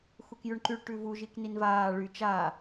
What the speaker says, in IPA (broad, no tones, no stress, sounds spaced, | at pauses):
x u k j ʉ ɳ ǃ y ɭ ʈ ʉ v u ʒ i k n i n v aː ɭ y t͡ʃ a